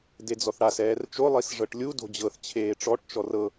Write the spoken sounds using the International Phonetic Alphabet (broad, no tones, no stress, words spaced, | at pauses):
ded͡zɔθɽas ɛːrt͡ʃo lˠisʐɤʈlʲu do̤d͡ʑɤθ t͡ɕʰeːʈ͡ʂɔʈ t͡ʃɔrɤ